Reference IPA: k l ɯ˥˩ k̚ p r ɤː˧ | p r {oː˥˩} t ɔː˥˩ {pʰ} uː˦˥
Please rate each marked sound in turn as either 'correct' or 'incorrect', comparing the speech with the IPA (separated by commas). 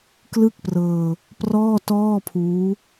incorrect, correct